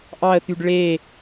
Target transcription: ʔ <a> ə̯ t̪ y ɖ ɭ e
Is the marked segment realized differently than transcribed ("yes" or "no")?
yes